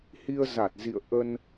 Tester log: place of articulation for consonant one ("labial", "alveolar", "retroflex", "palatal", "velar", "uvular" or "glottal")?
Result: glottal